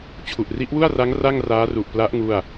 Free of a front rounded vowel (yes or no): yes